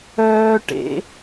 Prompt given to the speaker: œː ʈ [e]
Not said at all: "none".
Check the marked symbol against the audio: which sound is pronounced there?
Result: ḛ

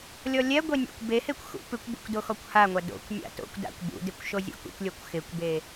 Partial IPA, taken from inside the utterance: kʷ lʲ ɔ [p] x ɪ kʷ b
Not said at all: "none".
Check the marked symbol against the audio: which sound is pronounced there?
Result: kʷ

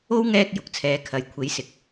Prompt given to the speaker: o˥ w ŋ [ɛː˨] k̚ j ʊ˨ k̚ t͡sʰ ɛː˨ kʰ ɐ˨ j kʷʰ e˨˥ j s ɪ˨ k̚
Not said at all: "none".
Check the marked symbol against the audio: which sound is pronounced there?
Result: ɛː˥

